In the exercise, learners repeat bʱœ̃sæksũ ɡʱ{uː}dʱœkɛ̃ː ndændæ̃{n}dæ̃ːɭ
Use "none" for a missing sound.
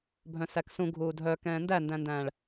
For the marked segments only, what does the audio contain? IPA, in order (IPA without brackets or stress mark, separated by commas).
uː, n